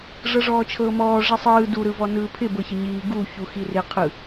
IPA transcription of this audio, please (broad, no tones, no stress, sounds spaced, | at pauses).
ʐ ɤ ʐ ɔː t͡ʃʰ ɤː m ɔː ʐ i sˤ ɯː d u ɾ ɯ v ɔ n ɯː pʰ ɪ b ɤ ç ɪ ɲ iː ɡ u ç u x i r ɪ qʰ ɯ